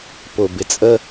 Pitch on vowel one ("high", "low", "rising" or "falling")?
low